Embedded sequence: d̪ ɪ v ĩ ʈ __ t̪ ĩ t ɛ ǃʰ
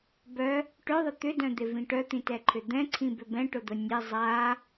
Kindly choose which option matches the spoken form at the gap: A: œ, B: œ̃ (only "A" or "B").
A